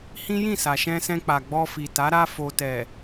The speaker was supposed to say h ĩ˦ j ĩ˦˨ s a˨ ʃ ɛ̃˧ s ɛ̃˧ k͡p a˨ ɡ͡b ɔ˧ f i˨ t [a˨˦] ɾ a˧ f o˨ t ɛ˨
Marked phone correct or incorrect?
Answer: correct